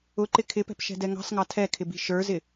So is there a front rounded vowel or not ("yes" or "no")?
no